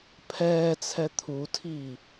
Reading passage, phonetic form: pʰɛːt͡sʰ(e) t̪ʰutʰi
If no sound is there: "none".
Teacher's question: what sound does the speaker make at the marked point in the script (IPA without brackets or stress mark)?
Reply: ɛ